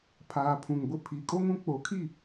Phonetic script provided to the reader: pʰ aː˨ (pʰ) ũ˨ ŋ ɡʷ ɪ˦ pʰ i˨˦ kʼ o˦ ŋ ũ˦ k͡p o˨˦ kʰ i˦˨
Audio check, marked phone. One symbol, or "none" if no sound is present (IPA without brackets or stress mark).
pʰ